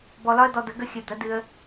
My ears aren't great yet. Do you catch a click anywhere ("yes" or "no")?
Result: no